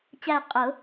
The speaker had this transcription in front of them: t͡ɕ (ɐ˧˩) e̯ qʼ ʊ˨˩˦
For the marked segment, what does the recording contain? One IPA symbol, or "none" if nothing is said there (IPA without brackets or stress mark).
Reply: æ˧˩